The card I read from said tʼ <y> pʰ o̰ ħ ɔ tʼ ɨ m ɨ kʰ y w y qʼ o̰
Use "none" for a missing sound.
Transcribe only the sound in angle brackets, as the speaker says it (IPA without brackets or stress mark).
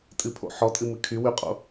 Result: ɨ